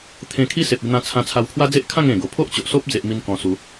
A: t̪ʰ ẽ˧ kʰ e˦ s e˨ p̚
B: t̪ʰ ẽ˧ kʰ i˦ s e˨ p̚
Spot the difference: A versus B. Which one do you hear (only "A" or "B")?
B